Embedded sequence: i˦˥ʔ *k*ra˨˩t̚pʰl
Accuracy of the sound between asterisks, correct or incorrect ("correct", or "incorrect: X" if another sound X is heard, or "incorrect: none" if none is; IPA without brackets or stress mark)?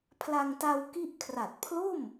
incorrect: kʰ